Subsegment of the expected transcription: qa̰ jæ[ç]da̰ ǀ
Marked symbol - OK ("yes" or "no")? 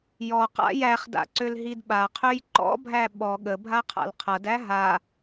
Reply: no